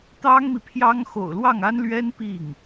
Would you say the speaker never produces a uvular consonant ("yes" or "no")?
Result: yes